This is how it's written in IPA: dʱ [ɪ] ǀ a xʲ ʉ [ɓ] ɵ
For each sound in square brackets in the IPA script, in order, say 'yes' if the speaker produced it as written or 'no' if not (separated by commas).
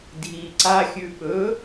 no, yes